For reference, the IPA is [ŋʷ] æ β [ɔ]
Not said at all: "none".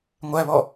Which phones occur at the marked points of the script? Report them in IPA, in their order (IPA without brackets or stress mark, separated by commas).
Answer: ŋʷ, ɔ